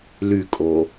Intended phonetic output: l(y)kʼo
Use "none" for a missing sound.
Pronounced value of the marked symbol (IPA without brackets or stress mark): y